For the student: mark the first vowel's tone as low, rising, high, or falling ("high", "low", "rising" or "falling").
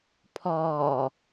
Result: low